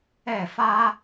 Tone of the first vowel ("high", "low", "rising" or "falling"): falling